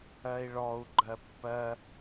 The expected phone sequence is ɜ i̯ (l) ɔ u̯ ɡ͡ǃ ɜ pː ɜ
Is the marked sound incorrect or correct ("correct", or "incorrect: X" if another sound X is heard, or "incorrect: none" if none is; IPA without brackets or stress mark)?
incorrect: ɭ